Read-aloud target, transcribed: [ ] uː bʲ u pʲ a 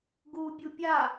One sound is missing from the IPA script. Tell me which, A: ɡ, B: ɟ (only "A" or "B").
A